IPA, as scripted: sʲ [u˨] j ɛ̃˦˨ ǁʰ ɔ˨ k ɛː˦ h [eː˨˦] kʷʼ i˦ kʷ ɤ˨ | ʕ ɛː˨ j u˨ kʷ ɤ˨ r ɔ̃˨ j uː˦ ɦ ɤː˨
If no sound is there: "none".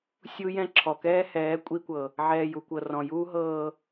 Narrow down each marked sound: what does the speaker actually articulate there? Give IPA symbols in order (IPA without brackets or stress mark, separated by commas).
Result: u˦, ɛː˨˦